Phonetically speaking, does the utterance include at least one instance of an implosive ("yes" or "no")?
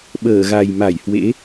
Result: yes